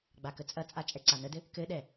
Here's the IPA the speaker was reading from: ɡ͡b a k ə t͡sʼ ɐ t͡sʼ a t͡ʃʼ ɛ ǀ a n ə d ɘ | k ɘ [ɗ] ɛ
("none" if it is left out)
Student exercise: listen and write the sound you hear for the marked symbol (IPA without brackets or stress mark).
ɗ